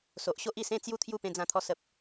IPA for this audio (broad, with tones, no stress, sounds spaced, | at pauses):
s o˨ ʔ ɕ o˦ ʔ i˨˩ s ẽ˥˧ t͡s j u˦ t̪ʰ j u˥˧ p ẽ˧ d͡z ã˧ t̪ʰ ɔ˧ s ə˨ p̚